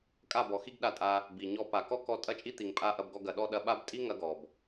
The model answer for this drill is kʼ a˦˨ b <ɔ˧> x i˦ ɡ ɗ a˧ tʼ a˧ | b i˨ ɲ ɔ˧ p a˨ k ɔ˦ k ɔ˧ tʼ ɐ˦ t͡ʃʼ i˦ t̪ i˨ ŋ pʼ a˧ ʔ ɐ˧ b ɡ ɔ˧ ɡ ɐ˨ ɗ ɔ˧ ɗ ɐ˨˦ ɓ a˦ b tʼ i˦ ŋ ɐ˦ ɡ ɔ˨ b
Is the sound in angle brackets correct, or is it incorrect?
incorrect